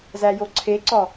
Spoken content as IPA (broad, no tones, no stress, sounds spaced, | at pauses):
z æ j o ǀʰ e ǀ ɒ